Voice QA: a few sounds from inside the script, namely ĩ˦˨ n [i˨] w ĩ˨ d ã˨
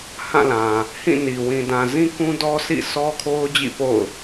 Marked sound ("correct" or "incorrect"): correct